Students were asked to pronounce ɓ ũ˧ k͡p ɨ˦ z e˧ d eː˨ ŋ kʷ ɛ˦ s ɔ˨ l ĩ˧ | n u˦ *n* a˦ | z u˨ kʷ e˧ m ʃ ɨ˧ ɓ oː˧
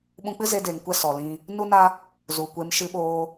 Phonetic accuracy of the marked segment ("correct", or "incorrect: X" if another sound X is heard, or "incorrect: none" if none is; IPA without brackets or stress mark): correct